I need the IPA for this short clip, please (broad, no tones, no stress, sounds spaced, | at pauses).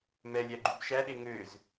m ɛ lʲ æ ɡ͡ǃ y b ʃ æ ɗ e ŋ ø z